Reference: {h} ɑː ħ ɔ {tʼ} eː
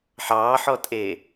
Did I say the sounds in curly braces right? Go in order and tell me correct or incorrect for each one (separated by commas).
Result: incorrect, correct